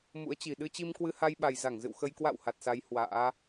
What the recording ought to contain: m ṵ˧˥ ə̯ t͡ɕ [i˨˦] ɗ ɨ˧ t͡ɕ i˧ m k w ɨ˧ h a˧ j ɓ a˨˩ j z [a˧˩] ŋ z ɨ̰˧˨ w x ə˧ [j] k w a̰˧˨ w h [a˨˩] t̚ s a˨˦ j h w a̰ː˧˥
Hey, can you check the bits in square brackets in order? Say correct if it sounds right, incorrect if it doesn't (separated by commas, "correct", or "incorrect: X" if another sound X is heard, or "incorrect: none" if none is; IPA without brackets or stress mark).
incorrect: i˨˩, correct, correct, correct